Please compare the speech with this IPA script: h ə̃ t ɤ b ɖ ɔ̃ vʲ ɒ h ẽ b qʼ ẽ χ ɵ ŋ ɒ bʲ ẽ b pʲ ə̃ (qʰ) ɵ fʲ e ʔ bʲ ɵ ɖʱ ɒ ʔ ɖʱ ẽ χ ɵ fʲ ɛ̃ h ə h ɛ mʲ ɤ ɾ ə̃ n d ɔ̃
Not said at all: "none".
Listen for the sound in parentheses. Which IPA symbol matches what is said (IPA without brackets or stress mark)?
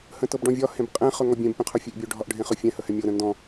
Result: qʰ